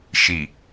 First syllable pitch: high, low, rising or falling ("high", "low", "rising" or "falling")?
low